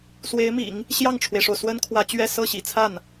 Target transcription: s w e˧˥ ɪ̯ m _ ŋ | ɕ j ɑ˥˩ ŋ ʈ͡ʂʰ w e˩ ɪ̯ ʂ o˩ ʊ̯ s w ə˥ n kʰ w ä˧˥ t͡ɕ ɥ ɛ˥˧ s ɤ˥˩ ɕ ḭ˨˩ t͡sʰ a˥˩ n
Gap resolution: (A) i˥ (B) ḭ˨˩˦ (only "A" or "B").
B